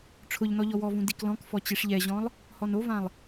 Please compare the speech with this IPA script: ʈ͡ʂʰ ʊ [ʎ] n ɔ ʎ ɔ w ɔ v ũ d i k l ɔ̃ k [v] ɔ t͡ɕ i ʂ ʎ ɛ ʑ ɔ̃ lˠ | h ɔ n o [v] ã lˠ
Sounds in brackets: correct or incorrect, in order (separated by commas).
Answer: correct, incorrect, correct